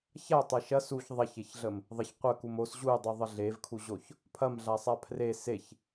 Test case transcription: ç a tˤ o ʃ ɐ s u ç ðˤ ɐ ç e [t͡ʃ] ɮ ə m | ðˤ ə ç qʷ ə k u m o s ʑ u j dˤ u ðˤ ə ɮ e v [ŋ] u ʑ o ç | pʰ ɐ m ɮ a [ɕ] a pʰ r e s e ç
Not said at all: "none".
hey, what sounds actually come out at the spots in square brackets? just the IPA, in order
ç, kʰ, sˤ

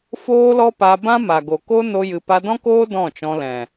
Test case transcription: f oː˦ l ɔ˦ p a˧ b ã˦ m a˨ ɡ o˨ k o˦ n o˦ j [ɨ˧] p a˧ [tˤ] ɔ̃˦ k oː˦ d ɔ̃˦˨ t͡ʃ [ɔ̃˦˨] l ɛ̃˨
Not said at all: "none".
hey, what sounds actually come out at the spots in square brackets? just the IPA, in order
ɨ˧, d, ɔ̃˧

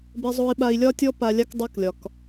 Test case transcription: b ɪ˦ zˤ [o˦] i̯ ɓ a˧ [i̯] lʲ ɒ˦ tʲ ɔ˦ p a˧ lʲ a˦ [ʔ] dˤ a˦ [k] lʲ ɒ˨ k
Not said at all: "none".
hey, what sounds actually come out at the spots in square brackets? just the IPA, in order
o˦, i̯, k, k

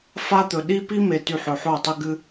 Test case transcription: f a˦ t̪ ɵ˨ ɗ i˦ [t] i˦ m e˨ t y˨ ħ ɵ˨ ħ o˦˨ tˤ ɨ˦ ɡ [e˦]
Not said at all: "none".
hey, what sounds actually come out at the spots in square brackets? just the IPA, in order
p, ɨ˦

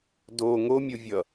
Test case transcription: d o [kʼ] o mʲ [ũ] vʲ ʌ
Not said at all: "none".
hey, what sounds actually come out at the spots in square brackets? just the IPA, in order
ŋ, u

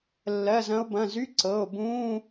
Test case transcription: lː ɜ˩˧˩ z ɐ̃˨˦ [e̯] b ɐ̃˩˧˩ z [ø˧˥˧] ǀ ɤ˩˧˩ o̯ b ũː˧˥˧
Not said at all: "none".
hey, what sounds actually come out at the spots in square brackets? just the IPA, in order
o̯, y˧˥˧

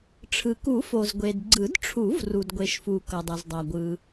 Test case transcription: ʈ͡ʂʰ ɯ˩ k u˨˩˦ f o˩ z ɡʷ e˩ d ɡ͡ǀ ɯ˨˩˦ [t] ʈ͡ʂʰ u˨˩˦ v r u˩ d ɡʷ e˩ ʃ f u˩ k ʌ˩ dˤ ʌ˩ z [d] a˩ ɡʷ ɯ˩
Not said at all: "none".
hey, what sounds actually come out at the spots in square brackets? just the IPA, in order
d, dˤ

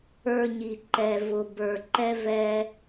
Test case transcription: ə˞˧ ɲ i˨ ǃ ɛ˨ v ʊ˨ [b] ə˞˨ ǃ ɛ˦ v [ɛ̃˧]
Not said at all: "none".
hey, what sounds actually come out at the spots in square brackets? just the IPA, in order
b, ɛ˧

